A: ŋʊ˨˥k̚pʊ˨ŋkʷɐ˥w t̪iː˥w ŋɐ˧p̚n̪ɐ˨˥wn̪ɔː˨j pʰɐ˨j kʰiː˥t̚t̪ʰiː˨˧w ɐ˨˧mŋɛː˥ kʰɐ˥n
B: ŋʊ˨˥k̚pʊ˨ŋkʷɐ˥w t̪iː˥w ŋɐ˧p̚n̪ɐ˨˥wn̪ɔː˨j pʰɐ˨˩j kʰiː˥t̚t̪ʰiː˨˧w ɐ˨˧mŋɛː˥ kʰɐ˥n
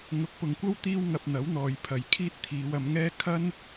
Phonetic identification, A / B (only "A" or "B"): B